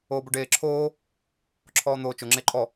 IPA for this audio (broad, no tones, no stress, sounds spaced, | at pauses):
oː b o ɖ eː ǁʰ oː | ǁʰ ɔː n̪ oː t͡ʃ ʊ ŋ͡ǁ e ǃʼ ɔ